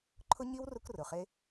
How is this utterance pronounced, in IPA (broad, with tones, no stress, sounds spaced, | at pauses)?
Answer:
ǃʰ ʊ˦ ɲ i˦ w r u˦ k r ʊ˨ χ e˦